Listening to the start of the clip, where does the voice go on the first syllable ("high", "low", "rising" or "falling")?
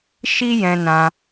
high